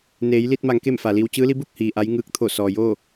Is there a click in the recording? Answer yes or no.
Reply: no